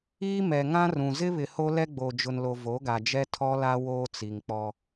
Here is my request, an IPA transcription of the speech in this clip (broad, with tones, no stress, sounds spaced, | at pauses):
iː˦ m ɛ˨ ŋ ã˦ r ũ˨ z ɪ˦ β ɪ˨ h o˦ l ɛ˦ ɡ͡b o˨ d͡ʒ ʊ˨ n l o˨ v o˨˦ ɡ a˨ d͡ʒ ɛ˦ tʰ ɔ˦ l a˦ w oː˦ t͡s i˨ ŋ k͡p ɔ˦